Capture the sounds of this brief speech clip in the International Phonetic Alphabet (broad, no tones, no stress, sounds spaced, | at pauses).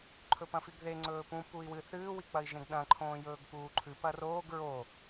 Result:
ǃʰ ɵ p ɐ̃ f i ɡ ð e ŋ͡ǀ ɵː p ũ p u i̯ w ɨ θ ɨː w i k͡p ɐ i̯ ʒ ẽ ɡ ɗ ɐ̃ ǃʰ õː j ɵː ɡ p uː ǃʰ ʉ p ɐ r oː ɡ ɹ o